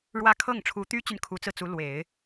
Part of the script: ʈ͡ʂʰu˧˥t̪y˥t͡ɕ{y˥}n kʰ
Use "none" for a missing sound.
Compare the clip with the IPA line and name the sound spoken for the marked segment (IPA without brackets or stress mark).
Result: y˨